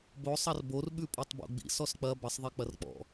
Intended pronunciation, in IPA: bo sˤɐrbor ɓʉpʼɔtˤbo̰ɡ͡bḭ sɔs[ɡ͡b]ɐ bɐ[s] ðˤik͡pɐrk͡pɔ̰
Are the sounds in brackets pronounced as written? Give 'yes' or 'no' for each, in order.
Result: no, no

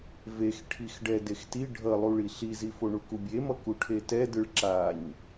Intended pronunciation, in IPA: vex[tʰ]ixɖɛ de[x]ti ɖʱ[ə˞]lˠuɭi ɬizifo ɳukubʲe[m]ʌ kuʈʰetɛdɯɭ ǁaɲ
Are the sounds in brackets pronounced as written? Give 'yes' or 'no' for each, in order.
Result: no, yes, no, yes

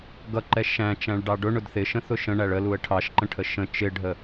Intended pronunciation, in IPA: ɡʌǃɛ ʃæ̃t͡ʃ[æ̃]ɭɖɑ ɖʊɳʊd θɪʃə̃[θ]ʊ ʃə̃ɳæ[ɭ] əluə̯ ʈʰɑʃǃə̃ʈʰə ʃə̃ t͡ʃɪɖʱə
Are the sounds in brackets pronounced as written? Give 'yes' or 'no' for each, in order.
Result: yes, yes, yes

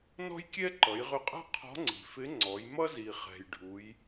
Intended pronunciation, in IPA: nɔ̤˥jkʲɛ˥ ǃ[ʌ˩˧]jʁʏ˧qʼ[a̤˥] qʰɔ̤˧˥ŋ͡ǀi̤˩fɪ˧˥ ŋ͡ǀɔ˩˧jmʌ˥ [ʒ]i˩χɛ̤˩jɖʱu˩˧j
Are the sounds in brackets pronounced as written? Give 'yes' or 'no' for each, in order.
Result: yes, yes, no

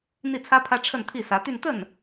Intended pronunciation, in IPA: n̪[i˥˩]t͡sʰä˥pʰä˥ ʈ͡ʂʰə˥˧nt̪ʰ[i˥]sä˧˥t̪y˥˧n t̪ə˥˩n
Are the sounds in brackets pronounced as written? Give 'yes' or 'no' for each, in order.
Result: yes, no

